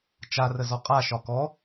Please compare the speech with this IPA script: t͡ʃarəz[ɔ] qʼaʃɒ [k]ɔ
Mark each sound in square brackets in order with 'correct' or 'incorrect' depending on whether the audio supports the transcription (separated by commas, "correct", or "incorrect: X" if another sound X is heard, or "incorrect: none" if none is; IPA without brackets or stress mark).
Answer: correct, correct